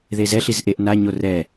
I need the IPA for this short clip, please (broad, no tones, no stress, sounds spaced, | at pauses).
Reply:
ð e z ɛ ɬ i z ʔ e ʔ n a ɲ o r ɛ